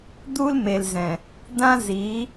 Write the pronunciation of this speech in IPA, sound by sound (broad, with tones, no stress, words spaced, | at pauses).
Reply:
d̪u˦lme˨lzɛ̃˨ | dã˦zi˨˦